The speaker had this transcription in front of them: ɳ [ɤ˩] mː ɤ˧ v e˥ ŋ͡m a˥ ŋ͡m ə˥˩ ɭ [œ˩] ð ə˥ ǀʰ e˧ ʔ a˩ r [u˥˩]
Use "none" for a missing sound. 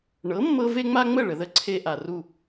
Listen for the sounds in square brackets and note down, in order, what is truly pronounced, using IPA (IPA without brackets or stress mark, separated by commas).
ɤ˩˥, ə˩, u˥˩